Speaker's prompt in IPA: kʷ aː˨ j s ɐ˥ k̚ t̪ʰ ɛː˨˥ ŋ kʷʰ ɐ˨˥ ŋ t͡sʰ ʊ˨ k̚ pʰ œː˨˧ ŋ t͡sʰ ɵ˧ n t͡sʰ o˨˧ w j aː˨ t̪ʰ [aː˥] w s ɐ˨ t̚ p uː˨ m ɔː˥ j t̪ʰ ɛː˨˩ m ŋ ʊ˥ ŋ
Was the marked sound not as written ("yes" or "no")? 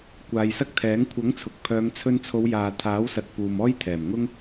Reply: yes